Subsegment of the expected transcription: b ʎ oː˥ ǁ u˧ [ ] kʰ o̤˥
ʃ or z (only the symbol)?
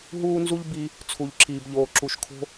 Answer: ʃ